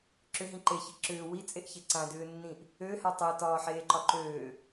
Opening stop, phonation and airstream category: click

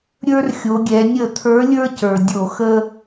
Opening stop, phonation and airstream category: plain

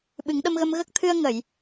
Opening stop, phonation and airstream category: implosive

